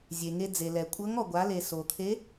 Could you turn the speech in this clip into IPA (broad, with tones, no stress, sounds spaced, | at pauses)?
zʲ e˩ ŋ e˧ d͡z e˩ l ɛ˩ kʷʼ ɤ˧˥ ŋ ɔ˩ ɡʷ a˩˧ l e˩ s o˩ t̪ʰ e˧˥